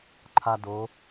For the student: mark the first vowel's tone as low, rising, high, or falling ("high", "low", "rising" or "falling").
high